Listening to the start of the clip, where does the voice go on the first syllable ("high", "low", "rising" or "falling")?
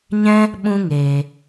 high